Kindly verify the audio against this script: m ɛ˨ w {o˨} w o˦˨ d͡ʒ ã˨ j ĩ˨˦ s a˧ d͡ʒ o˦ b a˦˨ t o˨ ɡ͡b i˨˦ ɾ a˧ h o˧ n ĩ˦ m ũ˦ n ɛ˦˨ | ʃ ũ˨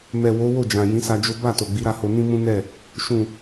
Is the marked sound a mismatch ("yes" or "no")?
yes